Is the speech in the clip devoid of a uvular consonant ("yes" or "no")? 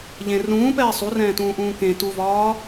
yes